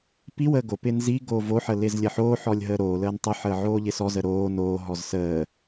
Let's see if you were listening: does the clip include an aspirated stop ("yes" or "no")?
no